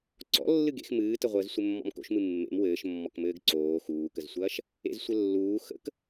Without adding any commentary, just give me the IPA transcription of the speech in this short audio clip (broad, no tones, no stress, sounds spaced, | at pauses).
ǀ ɔ̰ lː ɨ ɡ ḛ x m ɨː t ə ʁʷ əː z sʷ ɘ mː ɔ̰ m k o̰ ʃ m ɨ mː ḛ m w ɘː ʃ mː ɔ k m ɘː ɡ ǀ oː x uː k ə z sʷ ɐː ʃ | ḛ z sʷ ɘ lː uː x ə̰ k